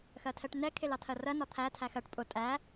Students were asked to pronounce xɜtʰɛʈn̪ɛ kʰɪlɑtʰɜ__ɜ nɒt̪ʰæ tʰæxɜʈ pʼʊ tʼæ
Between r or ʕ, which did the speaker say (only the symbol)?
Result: r